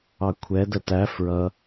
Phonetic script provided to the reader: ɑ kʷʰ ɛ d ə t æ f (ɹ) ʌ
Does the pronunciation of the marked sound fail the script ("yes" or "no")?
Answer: no